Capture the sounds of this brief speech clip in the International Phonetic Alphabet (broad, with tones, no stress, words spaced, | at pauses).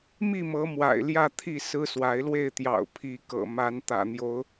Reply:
mi˥˨mɤ˨˦ mwa̰˨˩ɪ̯ljä˥˨t̪ʰi˥˨ sɹ̩˦swa˨˦ɪ̯lwe˥˨ɪ̯t̪jɑ̰˨˩ʊ̯ pʰi˨˦kɤ̰˨˩ma˨˦n t̪ä̰˨˩n̪jo˨˦ʊ̯